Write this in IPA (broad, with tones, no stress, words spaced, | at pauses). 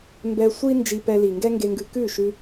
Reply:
mbɛ˧sʷi˦ nd͡ʒi˧pɛ˧li˨ ŋɡɛ˦ŋɡe˧ŋɡʉ˧ kʉ˦˨ʃʉ˧